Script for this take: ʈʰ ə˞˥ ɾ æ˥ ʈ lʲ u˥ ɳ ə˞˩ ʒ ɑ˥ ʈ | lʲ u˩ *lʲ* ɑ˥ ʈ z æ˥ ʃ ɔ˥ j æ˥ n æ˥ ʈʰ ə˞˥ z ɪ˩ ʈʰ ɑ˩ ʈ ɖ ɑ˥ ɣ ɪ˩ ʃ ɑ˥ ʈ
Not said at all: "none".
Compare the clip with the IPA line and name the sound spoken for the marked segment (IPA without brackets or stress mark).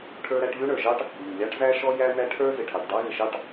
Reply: lʲ